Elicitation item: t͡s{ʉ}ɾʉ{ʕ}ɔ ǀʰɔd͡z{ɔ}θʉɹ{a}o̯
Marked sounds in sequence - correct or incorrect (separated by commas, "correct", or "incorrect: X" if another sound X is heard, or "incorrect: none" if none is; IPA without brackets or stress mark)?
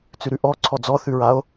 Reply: correct, incorrect: ʔ, correct, correct